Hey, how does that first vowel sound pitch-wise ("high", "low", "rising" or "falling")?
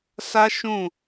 high